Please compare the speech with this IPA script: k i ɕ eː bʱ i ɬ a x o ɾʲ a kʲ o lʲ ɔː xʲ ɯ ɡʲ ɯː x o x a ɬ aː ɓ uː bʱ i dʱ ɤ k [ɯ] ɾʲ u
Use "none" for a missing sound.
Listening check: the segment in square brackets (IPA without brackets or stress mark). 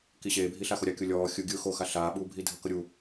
ɤ